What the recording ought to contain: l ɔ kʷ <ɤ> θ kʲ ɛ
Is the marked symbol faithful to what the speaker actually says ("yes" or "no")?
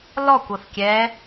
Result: yes